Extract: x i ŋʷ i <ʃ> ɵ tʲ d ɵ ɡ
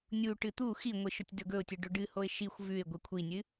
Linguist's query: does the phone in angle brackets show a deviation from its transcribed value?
no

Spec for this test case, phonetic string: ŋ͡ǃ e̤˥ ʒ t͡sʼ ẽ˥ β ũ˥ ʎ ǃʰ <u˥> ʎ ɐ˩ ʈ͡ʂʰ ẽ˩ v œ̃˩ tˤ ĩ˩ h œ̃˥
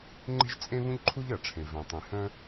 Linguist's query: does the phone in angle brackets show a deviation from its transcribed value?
no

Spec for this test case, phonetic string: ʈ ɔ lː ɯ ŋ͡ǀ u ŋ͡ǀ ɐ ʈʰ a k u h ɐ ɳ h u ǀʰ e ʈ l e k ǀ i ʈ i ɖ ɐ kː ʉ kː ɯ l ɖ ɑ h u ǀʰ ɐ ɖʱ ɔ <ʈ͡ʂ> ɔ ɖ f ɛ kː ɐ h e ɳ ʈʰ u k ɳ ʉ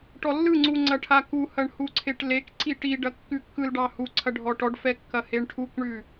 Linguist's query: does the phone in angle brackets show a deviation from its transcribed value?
yes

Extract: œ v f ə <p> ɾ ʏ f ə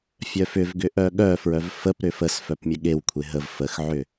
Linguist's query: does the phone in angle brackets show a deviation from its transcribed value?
no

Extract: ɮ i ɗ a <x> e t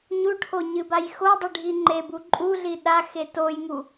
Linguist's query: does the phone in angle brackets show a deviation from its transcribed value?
no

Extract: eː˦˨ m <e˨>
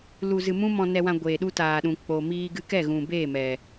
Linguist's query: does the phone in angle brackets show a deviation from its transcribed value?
yes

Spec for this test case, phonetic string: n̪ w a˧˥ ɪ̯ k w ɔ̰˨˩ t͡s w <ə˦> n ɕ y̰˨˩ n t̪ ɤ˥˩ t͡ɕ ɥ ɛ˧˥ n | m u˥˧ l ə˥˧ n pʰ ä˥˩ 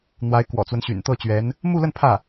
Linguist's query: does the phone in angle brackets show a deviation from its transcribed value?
no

